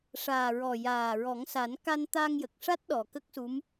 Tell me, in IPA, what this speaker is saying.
ʂ aː˨˩ ɹ ɔ˨˩ j aː˨˩ ɹ ɔ˨˩˦ ŋ s a˨˩˦ n k a˧ n t̪ a˧ ŋ j ə˨˩ k̚ ʂ a˦˥ t̚ ɗ ɔ˨˩ k ə˦˥ k̚ s u˧˥ m

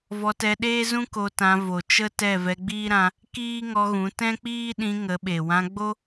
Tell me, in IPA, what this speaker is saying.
v ɔ˧ t ɛ˧ ɗ eː˦ z ũ˦ k o˧ t ã˧ v o˨ t͡ʃ ə˦ t ɛ˦˨ v ɛ˧ ɡ͡b iː˦ ɾ ã˧ | k iː˦ ŋ ɔ˧ ɣ ũ˨˦ t ɛ̃˦ k͡p iː˦ ɗ ĩ˧ ŋ ə˨˦ ɓ e˨ w ã˧ ɡ͡b o˦

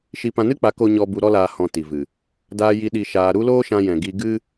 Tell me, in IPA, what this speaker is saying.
ʃ i˧ p ã˧ n ɨ˦ k͡p a˨˦ k o˧ ɲ ɔ˧ b u˧ ɾ ɔ˦ l aː˧ h ɔ̃˨ t i˨ v ɨ˨ | d aː˧ j i˧ ɗ i˧ ʃ aː˧ ɾ u˦ l oː˦ ʃ ã˧ j ɛ̃˨ ɡ i˧ ɡ ɨ˦

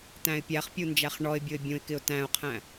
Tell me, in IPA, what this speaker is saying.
t æ̃ ɪ̯ pʲ æ χ pʲ u n d͡ʒ æ χ ɳ ɔ ɪ̯ bʲ ʊ ɪ̯ bʲ ũ ɪ̯ k ɪ ʊ̯ t æ̃ ʊ̯ qʰ æ̃

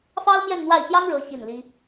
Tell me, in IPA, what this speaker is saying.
f ɑ˥ ʊ̯ m j ɛ˥˧ n n̪ w a˥˩ ɪ̯ ɕ j ɑ˥ ŋ ɻ ɤ˧˥ ɕ i˥˩ n l i˥

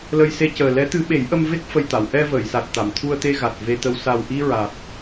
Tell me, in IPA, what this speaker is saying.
l ə˧ j s e˧ c əː˨˩ l ɛ˧˥ t̪ ɨ˧˥ ɓ e˨˩˦ j ʔ ə˧ m v e˦˥ k̚ f ə˨˩ j t̪ a˨˩˨ w ʔ ɛ˧ v əː˨˩˨ j s a˨˩ t̚ t̪ a˨˩˨ m t̪ʰ u˧ ə̯ t̪ e˧ ɣ a˨˩ t̚ v e˧ t̪ ə˧ w s a˨˩ w ʔ i˧ ɹ a˨˩ t̚

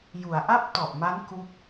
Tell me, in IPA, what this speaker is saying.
j u˩˦ a̯ ʔ a˥˩ p̚ t ɔ˨˩ ʔ m a˦˥ n k u˥˩ k̚

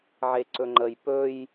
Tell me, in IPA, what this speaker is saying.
ʕ e ǀ ɵ ŋ͡ǃ ə j p ɵ j

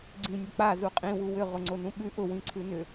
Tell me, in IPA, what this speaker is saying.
ɡ͡ǀ ĩ nʲ ʊ k͡p a z u qʼ ĩ w u w ʏ ʁ ʊ ŋ͡ǀ o n ũ ɓ ʉ ʔ ʊ w ĩ ǀʰ ʉ n ʏ

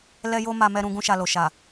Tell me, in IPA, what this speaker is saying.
l ɛ˦ j o˦ m a˧ m ɛ˧ ɾ ũ˧ ɡ ũ˦ ʃ a˧ l o˨ ʃ a˨

